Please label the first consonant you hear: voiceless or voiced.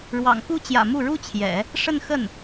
voiced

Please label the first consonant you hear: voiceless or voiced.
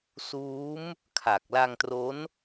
voiceless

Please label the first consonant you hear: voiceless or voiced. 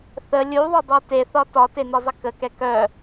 voiceless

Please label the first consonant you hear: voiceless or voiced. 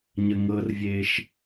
voiced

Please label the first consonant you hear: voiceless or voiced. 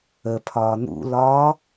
voiceless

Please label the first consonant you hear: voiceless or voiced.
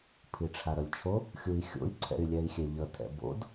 voiceless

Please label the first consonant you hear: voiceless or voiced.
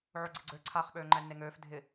voiced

